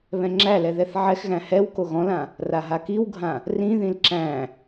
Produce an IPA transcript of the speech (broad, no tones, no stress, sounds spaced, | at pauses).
β ɛ̃ ŋ͡ǁ æ l ɛ ð ɛ θ ʕ ɛ x ɣ æ̃ h ɛ w k o ɣ ɔ̃ l ã | r a ɦ a k i w ɡʱ ã | r ĩ ð ĩ l ǁ æ̃